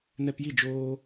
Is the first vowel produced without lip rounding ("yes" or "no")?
yes